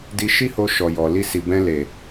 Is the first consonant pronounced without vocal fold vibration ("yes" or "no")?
no